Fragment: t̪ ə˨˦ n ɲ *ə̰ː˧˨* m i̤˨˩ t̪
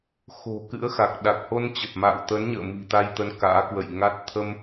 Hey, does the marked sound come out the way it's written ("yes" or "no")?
yes